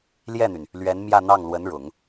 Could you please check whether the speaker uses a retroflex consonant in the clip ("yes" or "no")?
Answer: yes